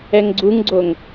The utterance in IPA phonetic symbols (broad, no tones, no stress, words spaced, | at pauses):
ɛŋɡ͡ǀuŋɡ͡ǀoŋ